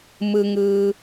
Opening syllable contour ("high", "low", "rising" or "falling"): low